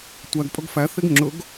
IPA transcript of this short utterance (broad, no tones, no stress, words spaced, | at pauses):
tʷæɡ pʼɵɡfæ θeɡŋ͡ǁɵɡ